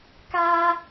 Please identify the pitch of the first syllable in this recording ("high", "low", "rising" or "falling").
high